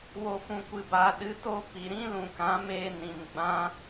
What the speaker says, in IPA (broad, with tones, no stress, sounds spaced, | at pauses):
w o˨ f ũ˨ kʷ ɨ˨ b aː˨ ɗ ɨ˨˦ t o˦ p i˨ ɾ ĩ˦ l ũ˨ k ã˨˦ m eː˧ n ĩ˨ m ɡ͡b ã˦